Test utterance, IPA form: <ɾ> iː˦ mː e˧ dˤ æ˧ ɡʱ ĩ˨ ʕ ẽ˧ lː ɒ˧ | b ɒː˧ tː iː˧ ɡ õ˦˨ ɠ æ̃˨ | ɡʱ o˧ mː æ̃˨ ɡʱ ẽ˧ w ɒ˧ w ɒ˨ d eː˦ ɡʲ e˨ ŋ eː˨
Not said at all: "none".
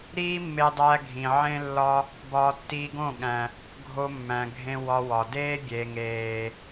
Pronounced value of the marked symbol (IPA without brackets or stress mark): ɾ